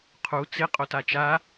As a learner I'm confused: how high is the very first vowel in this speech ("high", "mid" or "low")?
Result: high